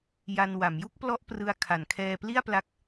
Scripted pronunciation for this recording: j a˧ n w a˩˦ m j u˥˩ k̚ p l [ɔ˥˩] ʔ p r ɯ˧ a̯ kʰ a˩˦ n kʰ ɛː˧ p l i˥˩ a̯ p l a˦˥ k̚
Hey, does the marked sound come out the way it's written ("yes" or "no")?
yes